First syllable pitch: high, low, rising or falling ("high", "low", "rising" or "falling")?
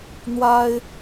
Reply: high